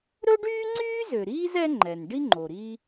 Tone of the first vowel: high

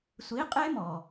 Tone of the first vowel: rising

